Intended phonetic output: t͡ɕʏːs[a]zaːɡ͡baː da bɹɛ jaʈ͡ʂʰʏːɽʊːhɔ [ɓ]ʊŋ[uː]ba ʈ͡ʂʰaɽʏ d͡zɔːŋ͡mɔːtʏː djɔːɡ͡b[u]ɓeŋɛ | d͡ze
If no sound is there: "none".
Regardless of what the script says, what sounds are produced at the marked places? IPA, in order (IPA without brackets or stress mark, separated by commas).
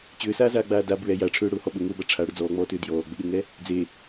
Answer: aː, ɓ, ʊː, ʏ